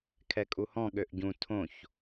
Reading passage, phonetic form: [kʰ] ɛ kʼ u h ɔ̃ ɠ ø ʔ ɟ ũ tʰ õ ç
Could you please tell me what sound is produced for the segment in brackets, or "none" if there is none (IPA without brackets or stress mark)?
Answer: kʰ